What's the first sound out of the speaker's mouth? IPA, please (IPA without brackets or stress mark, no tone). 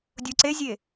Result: dʲ